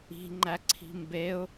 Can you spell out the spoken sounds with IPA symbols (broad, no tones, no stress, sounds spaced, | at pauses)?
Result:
i̤ ŋ͡ǃ æ ǀʰ i̤ m b e ʊ̯